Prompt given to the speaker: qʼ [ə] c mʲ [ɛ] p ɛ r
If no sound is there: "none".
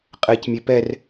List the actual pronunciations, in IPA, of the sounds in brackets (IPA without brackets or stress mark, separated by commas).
ɛ, e